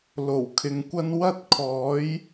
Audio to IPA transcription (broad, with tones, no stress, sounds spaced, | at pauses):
l o˨˩ w kʰ ɪ˨ ŋ kʷ ɐ˥ n w ɐ˥ t̚ kʰ ɔː˨˥ j